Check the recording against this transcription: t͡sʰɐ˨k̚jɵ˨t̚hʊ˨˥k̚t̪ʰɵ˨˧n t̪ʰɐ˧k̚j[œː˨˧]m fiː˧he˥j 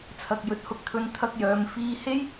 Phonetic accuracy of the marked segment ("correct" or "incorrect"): correct